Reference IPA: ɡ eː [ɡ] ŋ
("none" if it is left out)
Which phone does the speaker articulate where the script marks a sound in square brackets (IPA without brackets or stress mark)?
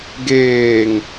none